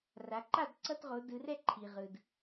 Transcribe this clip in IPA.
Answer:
r a˩˧ ǃ a˥˨ d ǀ ʌ˧˥˧ t ʁ o˩˧ d ɯ˩˧ r ɛ˥˨ ǃʰ i˩ ʁ ɯ˩ d

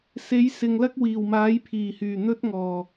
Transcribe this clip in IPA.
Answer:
s e˨˥ j s ɪ˨ ŋ l ɐ˥ k̚ w iː˨˩ w m aː˨˥ j pʰ iː˨˩ h yː˨˩ n̪ ɵ˥ t̚ ŋ ɔː˨˩

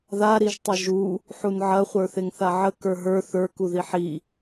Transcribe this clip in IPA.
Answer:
ð a ɾ i ʒ tˤ ɐ ʒ u | ħ u n ʕ ɐ χʷ ə˞ θ e ŋ θ a ʕ ə k ə˞ ɦ ə˞ θ ə˞ k u ð i ħ i

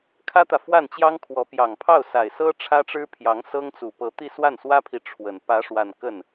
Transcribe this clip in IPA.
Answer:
kʰ ä˥ t̪ ä˨ f w a˥˩ n t͡ɕ j ɑ˥ ŋ kʰ w ɔ˧˥ p j ɑ˨˩ ŋ pʰ ɑ˥˩ ʊ̯ s a˨˩ ɪ̯ s ɤ˥ ʈ͡ʂʰ ä˥ ʈ͡ʂ ɻ̩˥ pʰ j ɑ˧˥ ŋ s ɤ˥ ŋ t͡s u˨˩ p ɤ˧˥ t̪ i˥˧ s w a˥˩ n s w ä˥ pʰ i˨ ʈ͡ʂʰ w ə˨˩ n p ä˧˥ ʂ w a˥˧ n k ə˥˩ n

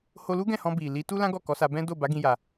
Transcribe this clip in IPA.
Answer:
h o˦ l u˦ ɡ ɛ̃˦˨ h ɔ̃˧ b i˨ l i˨˦ t u˦ l ã˦ ɡ ɔ˦˨ k ɔ˨˦ s a˧ b ɛ̃˦ d o˦˨ b a˨˦ ɡ ĩ˦ j a˧

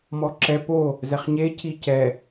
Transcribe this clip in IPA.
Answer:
m ɔ ǁ ɛ p o | z ɛ χ ɲ e c i c ɛ

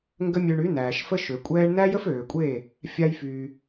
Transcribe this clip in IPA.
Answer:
ŋ ɡ ə˦ mʲ ø˧ ɳ y˨˦ n æː˨ ʃ f ə˦ ʃ ø˨ kʷʼ ɛː˦ ɳ n æ˦ j ə˦ f øː˨ kʷʼ eː˦˨ | fʲ a˦ j f yː˧

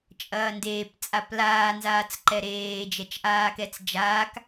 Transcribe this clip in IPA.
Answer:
t͡ʃʼ ɐː n d eː p t͡sʼ a p l aː n z aː t͡s ǃ ɛ ɾ eː d͡ʒ ɛ t͡ʃ ʔ aː k ɛ t͡s d͡ʒ aː k

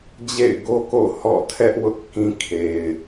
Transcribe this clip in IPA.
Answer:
d͡ʑ ḛ˦˨ ɪ̯ ɡ o˦ k o̰˦˨ h ɔ̰˦˨ tʰ ɛ˦ ʔ w ʊ˦ ʔ k ĩ˦ kʰ e˨ ɪ̯

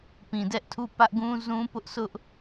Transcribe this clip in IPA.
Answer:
p ĩ˨ d ɛ˦ ʔ tʰ u˦˨ p ä˦ ʔ ɡ ũ˦ z ũ˦ p ʊ˦ ʔ s ʊ˦ ʔ

